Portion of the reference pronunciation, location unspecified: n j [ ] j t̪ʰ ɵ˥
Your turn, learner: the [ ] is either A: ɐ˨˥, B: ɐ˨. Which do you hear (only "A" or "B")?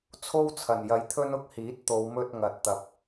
A